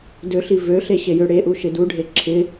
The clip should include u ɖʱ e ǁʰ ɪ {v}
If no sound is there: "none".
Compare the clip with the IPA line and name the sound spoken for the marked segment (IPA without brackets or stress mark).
none